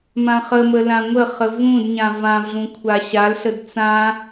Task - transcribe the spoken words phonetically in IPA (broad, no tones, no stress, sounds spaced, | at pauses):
m ã χ ə m ə l ã ŋʷ ə χ ə v ũ d ɲ ã v ã v ɮ ũ kʷʰ a ɕ a l ɬ ə d t͡s ã